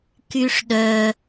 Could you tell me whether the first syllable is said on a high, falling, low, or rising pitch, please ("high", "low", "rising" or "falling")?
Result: low